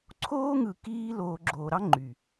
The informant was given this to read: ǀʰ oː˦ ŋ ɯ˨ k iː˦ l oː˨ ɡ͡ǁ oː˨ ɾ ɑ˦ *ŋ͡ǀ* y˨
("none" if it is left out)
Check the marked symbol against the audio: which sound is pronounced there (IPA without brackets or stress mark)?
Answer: ŋ͡ǃ